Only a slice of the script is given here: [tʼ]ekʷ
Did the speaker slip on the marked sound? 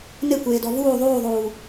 yes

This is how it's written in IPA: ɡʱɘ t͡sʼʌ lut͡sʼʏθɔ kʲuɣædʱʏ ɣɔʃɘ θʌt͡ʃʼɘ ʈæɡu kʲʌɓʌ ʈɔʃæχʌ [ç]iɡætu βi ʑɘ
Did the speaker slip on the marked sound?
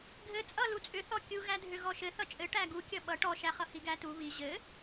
yes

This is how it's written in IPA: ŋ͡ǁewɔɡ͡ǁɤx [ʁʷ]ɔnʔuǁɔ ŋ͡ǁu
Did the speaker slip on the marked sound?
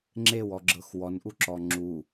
yes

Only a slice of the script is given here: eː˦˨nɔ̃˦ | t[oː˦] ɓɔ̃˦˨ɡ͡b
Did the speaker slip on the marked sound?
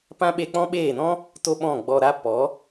yes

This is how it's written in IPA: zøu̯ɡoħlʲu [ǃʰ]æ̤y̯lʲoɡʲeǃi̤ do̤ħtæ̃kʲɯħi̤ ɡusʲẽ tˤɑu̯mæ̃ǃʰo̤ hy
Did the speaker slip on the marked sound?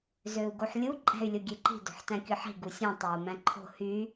yes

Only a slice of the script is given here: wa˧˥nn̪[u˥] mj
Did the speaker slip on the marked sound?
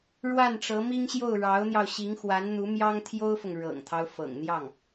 yes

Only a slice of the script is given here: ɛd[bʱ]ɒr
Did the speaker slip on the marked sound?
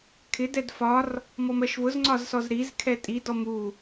yes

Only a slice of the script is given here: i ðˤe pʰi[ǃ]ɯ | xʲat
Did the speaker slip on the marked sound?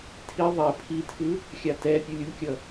yes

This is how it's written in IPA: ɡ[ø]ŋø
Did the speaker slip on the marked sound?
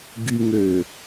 yes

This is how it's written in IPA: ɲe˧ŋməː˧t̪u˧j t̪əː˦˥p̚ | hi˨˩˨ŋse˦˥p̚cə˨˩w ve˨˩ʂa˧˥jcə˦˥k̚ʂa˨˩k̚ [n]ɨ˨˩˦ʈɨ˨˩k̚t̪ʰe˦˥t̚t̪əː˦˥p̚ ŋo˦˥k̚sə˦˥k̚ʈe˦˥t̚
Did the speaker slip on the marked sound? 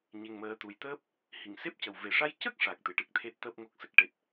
yes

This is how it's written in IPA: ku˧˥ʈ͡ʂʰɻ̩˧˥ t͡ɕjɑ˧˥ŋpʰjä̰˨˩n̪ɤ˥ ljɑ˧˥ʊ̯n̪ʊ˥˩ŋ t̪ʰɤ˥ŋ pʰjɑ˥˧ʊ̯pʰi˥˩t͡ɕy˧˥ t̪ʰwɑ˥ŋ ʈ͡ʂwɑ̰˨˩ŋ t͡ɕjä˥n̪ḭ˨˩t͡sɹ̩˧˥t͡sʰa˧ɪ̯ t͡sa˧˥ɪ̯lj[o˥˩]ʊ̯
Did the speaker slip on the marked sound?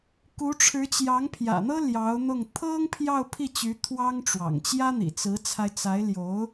yes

